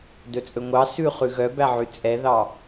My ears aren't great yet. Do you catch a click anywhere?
no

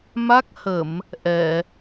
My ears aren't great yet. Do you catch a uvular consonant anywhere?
no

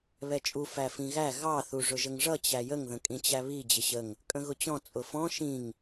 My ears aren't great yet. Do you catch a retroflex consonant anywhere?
yes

